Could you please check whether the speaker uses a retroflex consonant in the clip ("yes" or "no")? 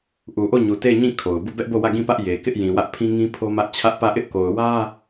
no